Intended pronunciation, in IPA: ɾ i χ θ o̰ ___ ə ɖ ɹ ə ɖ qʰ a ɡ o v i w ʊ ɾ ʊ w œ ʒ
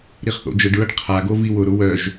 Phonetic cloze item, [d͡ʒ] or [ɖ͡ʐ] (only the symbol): d͡ʒ